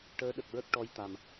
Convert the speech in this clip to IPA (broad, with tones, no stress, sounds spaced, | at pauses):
ʈ əː˧˥ ɗ ə˨˩ k̚ ɹ ə˦˥ k̚ ʈ ɔ˧˥ j t̪ a˨˩ m